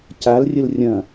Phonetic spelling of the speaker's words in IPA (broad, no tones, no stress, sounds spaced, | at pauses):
c a l rʲ ə l rʲ ɐ̃